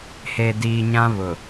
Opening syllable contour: low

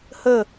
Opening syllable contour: falling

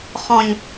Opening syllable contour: low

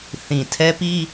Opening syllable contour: low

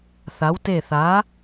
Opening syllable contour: rising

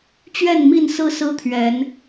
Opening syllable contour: falling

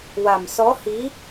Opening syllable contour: low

